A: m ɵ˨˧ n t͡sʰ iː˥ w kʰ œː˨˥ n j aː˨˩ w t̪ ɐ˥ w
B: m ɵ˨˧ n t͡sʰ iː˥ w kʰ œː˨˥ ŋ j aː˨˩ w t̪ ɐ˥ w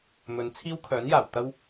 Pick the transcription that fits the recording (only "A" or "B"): A